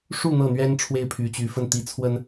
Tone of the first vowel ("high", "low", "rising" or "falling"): falling